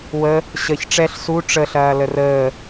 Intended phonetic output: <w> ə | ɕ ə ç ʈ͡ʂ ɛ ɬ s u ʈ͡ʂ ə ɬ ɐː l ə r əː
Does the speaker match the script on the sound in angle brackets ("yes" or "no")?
yes